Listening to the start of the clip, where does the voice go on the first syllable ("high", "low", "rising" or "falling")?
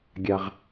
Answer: high